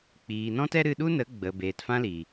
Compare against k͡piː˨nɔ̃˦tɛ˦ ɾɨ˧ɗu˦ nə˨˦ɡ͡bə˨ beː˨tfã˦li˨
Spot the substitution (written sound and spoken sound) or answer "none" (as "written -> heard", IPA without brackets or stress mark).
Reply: none